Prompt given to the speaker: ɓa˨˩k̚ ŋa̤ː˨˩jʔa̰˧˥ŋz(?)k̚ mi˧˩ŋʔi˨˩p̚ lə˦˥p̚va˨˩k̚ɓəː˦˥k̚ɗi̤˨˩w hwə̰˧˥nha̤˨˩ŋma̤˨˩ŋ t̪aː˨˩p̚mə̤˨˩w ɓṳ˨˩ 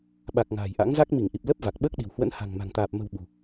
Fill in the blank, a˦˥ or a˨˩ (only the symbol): a˦˥